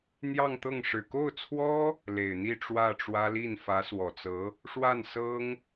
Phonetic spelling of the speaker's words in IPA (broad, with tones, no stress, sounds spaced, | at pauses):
n̪ j ɑ˥˧ ŋ t̪ ɤ˥˩ ŋ ʂ ɻ̩˨˩ k o˥˩ ʊ̯ t͡sʰ w ɔ˥ | l e˨˩ ɪ̯ n̪ i˥˧ ʈ͡ʂ w ä˥˩ ʈ͡ʂ w ä˥ l i˥˩ n f ä˧˥ s w ɔ˨˩ t͡s ɤ˧˥ | ʂ w a˥˩ n s ɤ˥ ŋ